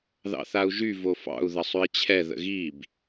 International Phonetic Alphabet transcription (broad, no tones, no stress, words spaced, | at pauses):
ðɑ̰θau̯ʒy vofɑ̰u̯ ðəsˤʉi̯t͡ɕʰɛ ðə̰ɣib